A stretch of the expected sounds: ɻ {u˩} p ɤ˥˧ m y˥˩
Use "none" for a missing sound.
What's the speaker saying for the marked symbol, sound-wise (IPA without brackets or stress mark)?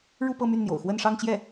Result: u˥˧